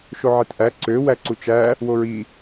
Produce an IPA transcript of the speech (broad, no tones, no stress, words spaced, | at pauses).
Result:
ʃoʕetʔæ ǀø wæǀut͡ʃæ | woɹi